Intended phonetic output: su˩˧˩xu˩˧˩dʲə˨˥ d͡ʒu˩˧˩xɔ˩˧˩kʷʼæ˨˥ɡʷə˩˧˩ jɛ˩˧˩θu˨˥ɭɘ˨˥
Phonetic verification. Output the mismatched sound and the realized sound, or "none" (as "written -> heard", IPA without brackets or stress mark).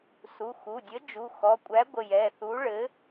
none